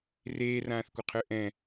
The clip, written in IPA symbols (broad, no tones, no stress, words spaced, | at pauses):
reːrãːθkʷəqʰø ʔɛ̃